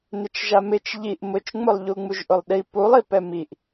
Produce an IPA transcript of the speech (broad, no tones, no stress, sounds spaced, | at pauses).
n ɪ t͡ʃ ʒ a m ɪ t͡ʃ ʎ i ʔ m ʊ t͡ʃ ŋ͡m ʊ lˠ ʎ u ŋ͡m u ʒ ʔ ʊ lˠ ɗ i p u lˠ i p ɛ m i ʔ